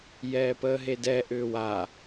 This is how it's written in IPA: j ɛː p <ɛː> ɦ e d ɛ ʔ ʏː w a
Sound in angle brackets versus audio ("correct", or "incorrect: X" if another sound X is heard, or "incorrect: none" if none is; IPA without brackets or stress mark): incorrect: əː